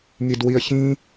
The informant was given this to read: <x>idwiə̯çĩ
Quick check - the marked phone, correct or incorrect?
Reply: incorrect